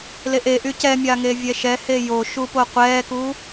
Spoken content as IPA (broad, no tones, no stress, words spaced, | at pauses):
leʔeʔy cɛmʲa ŋevʲɛʃɛhe joʃu poqʷɛːku